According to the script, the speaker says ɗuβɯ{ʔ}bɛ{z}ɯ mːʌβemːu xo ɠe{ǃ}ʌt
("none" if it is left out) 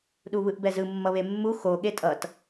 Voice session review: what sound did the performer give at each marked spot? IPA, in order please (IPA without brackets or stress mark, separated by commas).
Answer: ʔ, z, tʼ